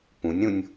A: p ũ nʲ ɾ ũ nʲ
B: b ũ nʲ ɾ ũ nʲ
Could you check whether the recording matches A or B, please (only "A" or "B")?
A